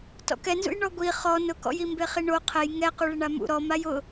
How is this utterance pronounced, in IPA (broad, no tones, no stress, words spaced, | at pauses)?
tɔ̰kɛnzṵj ɳɔɡʷi χɔ nʊkɔ̰jimbe χiɳo qʰɛj ŋɛ quɭɪɳamṵ ɾɔmaj ʊ